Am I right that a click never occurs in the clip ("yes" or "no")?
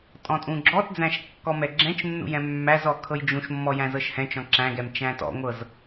no